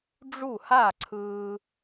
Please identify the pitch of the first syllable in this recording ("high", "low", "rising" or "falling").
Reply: falling